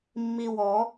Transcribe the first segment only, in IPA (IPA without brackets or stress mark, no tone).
mː